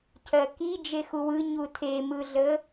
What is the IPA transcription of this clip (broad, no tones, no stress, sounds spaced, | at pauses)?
cʰ ɜ k i d͡ʒ e x u w ɯ ɲ u tʰ e m ɯ ɮ ə